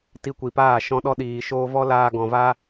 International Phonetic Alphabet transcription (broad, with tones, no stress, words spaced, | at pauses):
ti˧kʷi˨paː˦˨ ʃɔ̃˧ɗɔ˧ɗiː˨ʃoː˧ vɔ˦laː˧ɡɔ̃˨vaː˦